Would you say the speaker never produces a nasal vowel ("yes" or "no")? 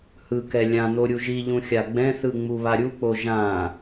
no